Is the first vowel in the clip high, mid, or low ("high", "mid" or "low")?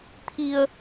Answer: high